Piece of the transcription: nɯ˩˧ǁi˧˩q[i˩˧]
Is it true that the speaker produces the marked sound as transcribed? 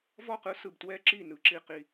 no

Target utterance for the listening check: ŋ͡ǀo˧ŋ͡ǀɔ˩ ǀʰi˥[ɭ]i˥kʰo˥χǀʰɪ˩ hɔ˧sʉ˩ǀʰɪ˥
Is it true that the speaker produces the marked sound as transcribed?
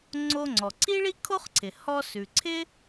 yes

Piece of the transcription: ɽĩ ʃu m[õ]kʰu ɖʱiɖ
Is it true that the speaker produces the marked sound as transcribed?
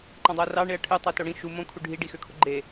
yes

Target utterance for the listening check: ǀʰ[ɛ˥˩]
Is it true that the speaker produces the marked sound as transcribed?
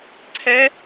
no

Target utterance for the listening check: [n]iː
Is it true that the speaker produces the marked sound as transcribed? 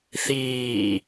no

